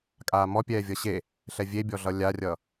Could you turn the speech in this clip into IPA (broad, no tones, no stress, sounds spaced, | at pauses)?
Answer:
kʼ aː m ɔ pʲ ɛː vʲ ʌ ɕ e | ɬ ɛ vʲ e bʲ ɔ ɮ ʌ lʲ a rʲ ʌ